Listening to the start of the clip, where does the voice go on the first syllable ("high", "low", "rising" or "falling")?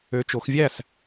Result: rising